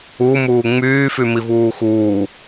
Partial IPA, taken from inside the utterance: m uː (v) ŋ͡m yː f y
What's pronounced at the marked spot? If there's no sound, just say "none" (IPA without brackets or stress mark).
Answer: none